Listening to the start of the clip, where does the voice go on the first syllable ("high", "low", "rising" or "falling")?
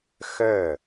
falling